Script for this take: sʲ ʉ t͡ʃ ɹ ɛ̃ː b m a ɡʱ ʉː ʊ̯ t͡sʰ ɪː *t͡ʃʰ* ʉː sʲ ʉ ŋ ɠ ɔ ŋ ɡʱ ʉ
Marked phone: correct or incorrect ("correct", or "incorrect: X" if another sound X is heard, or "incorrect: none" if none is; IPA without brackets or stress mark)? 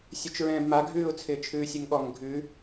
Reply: correct